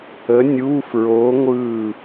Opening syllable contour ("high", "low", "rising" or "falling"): rising